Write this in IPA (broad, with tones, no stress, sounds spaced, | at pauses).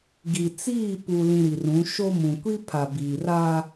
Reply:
ɡ i˨ t͡s iː˦˨ p u˨ l ĩ˨ ɾ i˨ r ũ˨˦ ʃ o˦ m ũ˨ kʷ i˦ pʰ a˨ b iː˨ r a˦